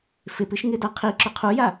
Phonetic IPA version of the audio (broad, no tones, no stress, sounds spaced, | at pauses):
f ɪ p ɨ ʃ ŋ ɪ d a qʰ i ǁ ʏ qʰ u j a